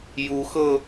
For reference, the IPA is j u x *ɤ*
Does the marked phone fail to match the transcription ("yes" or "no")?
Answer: no